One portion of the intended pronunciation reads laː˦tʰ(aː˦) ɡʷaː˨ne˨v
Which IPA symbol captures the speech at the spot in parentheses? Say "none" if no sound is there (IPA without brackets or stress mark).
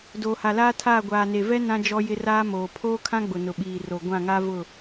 aː˦˨